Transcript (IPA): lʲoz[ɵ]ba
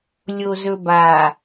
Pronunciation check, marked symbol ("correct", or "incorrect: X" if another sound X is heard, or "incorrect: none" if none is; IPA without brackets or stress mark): correct